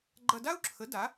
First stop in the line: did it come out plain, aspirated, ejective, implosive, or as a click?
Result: click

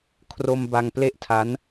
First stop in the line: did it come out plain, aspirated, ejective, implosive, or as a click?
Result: aspirated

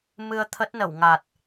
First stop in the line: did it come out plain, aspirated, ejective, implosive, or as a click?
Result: aspirated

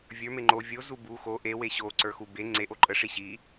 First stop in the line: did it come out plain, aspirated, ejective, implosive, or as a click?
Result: click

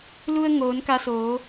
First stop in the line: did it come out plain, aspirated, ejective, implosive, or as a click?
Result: plain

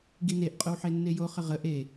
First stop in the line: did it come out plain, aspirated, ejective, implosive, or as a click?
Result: plain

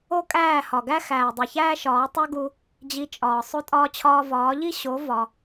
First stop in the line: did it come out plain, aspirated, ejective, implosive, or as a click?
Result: ejective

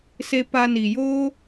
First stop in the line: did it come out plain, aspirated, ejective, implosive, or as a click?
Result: plain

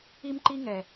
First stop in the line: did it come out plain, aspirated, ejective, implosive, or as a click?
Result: click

